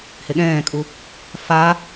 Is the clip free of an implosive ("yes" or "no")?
no